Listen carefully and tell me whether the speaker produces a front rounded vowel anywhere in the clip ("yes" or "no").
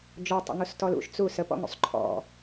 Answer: no